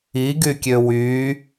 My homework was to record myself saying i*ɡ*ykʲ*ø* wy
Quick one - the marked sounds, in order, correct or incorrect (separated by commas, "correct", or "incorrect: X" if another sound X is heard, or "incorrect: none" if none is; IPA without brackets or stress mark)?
correct, correct